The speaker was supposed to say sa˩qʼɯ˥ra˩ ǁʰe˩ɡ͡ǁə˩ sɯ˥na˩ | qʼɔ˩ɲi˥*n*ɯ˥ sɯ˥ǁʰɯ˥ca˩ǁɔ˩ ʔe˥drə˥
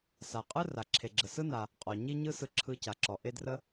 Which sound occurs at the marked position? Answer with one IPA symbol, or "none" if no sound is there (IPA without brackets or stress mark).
ɲ